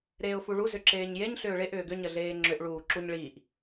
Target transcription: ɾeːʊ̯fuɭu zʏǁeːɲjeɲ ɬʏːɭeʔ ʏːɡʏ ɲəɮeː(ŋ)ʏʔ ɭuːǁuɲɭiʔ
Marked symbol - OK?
no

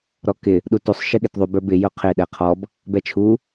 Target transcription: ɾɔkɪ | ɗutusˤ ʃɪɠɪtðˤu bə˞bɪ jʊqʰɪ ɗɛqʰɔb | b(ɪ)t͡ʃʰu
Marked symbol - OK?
no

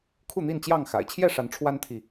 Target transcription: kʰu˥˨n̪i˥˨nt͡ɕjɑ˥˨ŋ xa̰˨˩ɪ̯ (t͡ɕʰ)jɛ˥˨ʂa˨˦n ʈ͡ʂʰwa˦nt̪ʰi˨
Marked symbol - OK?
yes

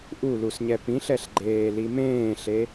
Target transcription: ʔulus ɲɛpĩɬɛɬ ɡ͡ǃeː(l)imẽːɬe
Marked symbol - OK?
yes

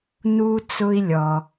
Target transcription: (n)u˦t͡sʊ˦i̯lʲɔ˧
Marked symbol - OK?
yes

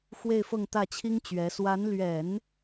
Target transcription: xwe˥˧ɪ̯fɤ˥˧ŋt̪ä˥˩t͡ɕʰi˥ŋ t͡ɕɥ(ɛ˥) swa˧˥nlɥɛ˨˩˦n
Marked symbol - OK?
no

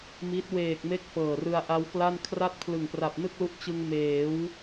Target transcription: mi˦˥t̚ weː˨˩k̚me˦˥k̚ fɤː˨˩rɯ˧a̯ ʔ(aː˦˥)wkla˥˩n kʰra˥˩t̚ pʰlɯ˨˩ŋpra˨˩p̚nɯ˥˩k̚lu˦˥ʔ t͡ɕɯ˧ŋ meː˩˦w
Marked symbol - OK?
no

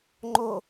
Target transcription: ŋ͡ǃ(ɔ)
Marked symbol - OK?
no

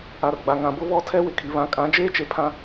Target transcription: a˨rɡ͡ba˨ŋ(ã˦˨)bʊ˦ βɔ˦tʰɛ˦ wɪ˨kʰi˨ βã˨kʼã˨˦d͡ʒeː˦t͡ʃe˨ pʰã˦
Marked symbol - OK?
no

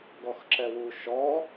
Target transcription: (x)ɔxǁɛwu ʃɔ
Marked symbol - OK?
no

